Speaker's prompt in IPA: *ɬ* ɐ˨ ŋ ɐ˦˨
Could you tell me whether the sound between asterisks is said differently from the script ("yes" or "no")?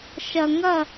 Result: yes